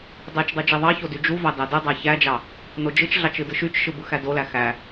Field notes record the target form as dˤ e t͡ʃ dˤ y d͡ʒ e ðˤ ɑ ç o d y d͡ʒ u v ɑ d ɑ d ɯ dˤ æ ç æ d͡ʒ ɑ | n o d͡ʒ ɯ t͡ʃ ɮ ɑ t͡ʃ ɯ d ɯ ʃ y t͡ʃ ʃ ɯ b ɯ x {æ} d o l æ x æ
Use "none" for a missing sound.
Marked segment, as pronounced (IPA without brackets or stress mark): æ